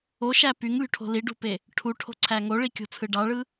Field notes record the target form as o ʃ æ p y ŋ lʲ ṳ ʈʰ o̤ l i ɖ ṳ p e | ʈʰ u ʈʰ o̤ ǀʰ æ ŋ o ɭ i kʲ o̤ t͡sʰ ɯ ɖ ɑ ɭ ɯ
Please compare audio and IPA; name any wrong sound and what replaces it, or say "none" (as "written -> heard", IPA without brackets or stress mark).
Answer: none